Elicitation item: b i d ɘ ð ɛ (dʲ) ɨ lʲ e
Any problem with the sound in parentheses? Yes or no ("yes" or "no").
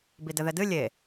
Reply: yes